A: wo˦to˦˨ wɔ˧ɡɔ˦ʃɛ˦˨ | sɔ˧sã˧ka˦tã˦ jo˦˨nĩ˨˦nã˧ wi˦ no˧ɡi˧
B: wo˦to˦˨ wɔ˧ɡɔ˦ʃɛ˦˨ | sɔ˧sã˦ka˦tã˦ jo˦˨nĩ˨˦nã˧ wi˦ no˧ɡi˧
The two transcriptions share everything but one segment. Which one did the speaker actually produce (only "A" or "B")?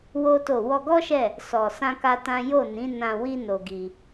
B